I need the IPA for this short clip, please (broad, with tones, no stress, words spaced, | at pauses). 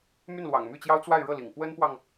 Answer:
my˥˩nlwɑ̰˨˩ŋmy˥˩t͡ɕjɑ˥ʊ̯ t͡swa˥˧ɪ̯ɻɤ˥˩lḭ˨˩ŋ pwə˥npwɑ˨ŋ